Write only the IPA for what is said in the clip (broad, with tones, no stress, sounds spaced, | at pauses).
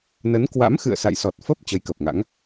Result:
n ə˨˦ n k w a̰˧˥ m x ɨ̰˧˨ ə̯ s a̰˧˨ j s ɔ˨˩ t̚ f ə˦˥ p̚ t͡ɕ ə˨˦ j k ə˨˩ p̚ ŋ a̰˧˥ ŋ